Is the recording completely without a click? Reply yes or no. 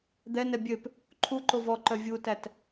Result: no